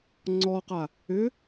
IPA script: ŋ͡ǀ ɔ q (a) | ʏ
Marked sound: correct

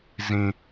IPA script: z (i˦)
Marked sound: incorrect: ĩ˦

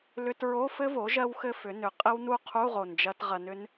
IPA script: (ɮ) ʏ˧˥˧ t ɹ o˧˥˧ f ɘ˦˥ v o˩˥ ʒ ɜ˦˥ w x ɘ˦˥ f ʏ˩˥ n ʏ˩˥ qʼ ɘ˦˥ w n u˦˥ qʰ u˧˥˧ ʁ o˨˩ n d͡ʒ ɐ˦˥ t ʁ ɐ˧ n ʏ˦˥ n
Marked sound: incorrect: l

